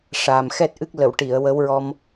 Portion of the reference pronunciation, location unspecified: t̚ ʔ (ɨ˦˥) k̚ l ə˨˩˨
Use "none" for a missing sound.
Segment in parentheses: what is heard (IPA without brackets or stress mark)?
ɨ˦˥